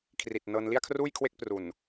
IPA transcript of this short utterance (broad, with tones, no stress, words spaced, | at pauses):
kʰri˨˩t̚ nɤː˧nli˥˩a̯kʰruː˥˩jkʰwe˥˩k̚ pru˨˩n